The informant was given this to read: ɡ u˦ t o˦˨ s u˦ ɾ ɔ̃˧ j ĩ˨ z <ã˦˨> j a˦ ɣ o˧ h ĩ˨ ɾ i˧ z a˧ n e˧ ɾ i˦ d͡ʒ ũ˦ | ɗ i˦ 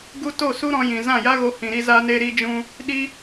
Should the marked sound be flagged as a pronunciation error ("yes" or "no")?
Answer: no